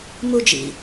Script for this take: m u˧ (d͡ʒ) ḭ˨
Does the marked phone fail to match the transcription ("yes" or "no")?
no